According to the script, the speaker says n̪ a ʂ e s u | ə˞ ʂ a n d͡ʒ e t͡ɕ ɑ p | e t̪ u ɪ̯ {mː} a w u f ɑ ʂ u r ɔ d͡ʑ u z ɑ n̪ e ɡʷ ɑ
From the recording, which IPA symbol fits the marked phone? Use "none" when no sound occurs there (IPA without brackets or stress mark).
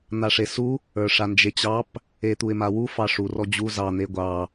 m